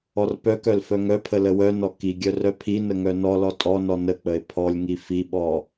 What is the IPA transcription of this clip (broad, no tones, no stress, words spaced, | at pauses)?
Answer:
ɔrpœkœl fœŋœpʰə ləwœnɔ kiɡʲœ rœpʰinə ŋœnɔlɔ tʼɔnɔ nək͡pəe̯ pʰɔlʲŋi fiɓɔ